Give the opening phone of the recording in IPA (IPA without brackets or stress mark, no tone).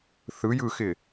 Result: θ